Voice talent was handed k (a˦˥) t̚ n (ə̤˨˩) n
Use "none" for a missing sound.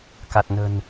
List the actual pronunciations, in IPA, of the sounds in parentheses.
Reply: a˨˩, ə̤˨˩

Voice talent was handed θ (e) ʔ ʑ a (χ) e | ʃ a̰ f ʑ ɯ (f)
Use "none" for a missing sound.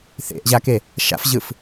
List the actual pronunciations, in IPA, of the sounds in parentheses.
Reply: ḛ, k, f

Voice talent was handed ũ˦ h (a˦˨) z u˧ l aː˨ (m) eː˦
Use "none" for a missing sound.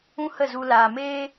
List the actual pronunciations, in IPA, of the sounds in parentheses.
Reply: ə˦˨, m

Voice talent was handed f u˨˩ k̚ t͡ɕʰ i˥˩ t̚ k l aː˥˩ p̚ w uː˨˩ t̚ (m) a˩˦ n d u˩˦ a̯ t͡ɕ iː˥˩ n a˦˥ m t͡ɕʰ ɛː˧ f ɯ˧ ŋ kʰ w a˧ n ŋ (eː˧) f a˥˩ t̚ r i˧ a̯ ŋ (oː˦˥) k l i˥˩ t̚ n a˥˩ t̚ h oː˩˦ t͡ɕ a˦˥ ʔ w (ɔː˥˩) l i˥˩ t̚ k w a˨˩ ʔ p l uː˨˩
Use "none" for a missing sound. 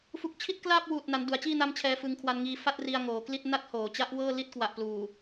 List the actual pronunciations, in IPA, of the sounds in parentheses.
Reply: n, iː˧, oː˩˦, ɤː˥˩

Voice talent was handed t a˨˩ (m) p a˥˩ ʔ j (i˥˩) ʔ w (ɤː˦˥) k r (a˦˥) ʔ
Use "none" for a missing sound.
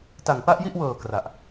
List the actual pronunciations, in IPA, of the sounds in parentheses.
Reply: ŋ, i˥˩, ɤː˨˩, a˨˩

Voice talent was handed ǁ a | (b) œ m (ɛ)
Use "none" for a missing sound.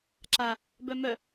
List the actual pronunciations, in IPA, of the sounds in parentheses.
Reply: b, œ

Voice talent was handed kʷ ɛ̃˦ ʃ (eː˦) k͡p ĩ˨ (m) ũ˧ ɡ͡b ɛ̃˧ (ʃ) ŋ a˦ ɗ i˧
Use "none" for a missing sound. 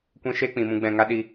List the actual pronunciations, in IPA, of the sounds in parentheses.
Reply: eː˦, m, none

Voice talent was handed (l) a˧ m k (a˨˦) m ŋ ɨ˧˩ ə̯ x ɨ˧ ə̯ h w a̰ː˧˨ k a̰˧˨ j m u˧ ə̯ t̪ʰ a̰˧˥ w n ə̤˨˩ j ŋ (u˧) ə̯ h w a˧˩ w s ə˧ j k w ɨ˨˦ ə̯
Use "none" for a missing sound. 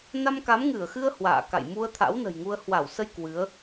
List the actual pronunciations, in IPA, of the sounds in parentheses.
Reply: n, a˨˦, u˧

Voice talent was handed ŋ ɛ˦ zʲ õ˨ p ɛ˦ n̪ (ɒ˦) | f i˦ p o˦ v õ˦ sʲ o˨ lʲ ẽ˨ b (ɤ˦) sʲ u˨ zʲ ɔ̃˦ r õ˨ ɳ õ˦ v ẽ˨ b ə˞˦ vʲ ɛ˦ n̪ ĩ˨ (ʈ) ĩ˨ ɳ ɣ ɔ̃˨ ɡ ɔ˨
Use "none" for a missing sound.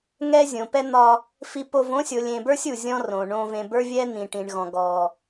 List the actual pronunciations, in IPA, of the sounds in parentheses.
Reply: ɒ˦, ə˞˦, ʈ

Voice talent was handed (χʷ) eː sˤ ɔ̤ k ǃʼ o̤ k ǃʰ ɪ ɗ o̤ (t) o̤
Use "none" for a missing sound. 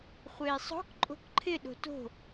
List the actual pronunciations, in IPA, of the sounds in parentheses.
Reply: χʷ, t

